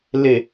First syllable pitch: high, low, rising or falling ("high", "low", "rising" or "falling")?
low